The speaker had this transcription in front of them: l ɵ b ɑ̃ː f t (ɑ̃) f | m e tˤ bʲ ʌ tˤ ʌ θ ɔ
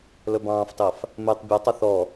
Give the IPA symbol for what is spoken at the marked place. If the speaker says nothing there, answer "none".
ɑ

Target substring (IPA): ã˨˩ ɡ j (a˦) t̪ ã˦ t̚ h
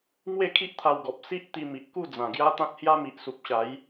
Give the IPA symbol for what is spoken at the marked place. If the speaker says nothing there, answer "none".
a˦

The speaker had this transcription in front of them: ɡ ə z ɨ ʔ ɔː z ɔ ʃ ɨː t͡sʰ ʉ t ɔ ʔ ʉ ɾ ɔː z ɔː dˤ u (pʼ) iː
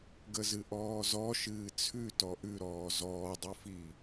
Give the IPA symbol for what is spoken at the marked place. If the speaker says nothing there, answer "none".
f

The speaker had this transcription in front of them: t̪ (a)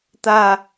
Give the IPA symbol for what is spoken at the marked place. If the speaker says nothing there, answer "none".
a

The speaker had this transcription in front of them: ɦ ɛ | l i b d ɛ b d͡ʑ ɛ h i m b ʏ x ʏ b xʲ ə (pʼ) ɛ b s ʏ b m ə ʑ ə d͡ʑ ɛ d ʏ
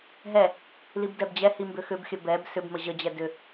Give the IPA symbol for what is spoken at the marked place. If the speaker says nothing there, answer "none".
b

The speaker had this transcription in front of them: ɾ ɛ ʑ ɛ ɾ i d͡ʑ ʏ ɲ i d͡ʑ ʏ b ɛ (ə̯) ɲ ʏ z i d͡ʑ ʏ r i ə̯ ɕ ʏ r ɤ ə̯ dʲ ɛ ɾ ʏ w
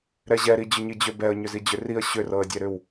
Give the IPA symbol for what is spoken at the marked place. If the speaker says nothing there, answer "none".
ə̯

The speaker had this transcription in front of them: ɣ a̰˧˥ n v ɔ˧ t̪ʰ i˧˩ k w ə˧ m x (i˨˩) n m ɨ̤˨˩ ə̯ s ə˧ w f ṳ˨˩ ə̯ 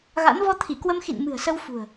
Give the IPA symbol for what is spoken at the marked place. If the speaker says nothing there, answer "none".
ḭ˧˨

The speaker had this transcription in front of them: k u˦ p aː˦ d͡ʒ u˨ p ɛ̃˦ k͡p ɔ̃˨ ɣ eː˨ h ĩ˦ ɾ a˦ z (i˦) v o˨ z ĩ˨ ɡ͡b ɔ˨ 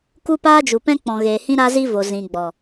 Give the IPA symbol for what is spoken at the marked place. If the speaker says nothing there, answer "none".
i˦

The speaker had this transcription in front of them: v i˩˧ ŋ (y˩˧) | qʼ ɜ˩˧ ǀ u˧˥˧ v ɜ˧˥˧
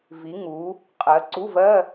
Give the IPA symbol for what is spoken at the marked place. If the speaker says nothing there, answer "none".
u˩˧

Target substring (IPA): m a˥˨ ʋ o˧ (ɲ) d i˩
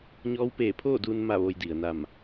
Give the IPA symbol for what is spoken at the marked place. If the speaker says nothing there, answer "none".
j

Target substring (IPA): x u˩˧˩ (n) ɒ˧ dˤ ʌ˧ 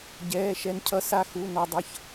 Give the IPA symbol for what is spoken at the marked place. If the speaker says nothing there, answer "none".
n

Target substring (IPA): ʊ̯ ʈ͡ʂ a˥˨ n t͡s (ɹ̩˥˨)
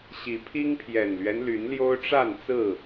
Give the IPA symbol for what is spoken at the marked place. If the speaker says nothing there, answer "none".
ɹ̩˥˨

